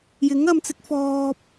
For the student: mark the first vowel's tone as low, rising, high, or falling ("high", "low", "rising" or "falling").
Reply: rising